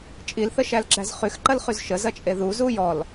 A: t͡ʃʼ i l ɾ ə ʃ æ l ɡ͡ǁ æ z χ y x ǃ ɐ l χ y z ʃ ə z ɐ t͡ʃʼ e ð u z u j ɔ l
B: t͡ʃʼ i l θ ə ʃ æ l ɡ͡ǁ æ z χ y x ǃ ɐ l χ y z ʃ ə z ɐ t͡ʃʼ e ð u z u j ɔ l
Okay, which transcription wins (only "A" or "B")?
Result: B